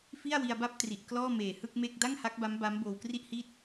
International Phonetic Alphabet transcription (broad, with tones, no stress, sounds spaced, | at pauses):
f i˥˩ a̯ w i˧ a̯ b a˥˩ p̚ t r i˨˩ ʔ k l ɔː˥˩ m eː˨˩ h ɯ˥˩ k̚ m e˥˩ k̚ d a˥˩ ŋ h a˦˥ k̚ b a˦˥ m b a˦˥ m b oː˧ w k r i˥˩ ʔ h i˥˩ t̚